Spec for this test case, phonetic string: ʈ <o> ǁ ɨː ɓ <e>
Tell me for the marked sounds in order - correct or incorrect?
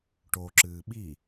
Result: correct, incorrect: i

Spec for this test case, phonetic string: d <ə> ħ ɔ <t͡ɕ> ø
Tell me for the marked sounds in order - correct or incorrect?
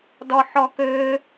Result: incorrect: ɔ, incorrect: k

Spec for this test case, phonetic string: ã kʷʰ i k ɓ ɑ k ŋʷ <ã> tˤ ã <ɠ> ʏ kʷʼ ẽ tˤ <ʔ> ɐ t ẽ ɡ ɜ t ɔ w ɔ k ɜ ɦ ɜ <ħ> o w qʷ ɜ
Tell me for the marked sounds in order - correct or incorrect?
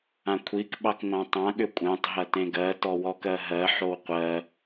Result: correct, correct, incorrect: ɦ, correct

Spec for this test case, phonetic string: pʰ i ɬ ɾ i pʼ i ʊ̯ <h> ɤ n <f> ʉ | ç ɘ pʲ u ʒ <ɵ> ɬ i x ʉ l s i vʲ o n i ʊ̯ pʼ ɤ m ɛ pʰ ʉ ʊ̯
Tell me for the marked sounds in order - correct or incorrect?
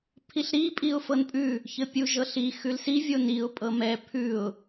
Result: incorrect: f, incorrect: pʼ, incorrect: ɤ

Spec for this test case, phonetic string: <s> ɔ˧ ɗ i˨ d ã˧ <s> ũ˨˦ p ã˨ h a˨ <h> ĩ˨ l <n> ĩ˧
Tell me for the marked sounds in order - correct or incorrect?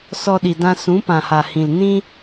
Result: correct, correct, correct, correct

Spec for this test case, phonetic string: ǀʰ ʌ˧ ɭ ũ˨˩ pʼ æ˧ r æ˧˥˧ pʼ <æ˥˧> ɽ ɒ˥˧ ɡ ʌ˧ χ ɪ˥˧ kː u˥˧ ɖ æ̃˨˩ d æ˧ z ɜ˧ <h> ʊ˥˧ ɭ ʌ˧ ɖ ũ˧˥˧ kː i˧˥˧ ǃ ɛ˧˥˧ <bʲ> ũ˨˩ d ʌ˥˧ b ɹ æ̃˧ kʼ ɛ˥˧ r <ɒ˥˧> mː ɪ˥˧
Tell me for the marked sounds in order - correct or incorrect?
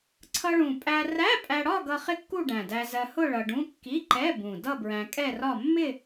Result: incorrect: æ˧, correct, incorrect: b, correct

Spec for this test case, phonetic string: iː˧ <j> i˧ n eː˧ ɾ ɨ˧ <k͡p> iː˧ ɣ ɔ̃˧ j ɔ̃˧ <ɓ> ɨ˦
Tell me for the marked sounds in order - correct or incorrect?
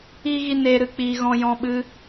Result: incorrect: ɣ, correct, correct

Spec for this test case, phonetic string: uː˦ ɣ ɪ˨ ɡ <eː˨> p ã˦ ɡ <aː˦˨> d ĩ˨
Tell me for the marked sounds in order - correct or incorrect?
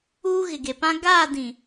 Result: incorrect: e˨, correct

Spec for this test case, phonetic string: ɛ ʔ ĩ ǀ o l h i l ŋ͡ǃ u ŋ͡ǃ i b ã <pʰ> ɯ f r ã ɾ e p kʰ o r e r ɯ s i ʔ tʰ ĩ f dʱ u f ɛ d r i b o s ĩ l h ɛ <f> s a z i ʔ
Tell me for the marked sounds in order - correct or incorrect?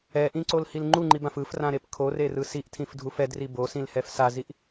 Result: incorrect: f, correct

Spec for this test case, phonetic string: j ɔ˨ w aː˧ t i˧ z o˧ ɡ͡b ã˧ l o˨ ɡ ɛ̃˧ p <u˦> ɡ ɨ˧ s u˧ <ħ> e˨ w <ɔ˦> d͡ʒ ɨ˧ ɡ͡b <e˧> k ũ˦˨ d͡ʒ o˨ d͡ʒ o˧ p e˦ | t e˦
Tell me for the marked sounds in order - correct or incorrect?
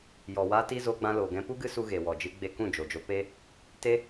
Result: correct, incorrect: ɣ, incorrect: ɔ˨, correct

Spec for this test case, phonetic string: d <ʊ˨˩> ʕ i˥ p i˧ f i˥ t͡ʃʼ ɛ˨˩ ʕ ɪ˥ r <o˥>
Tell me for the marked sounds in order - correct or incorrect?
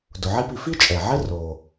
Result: correct, incorrect: o˨˩

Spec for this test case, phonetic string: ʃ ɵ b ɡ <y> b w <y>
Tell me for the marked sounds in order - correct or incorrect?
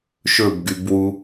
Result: correct, incorrect: u

